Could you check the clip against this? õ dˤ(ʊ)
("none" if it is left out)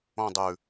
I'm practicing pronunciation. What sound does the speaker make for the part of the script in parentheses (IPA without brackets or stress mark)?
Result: ʉ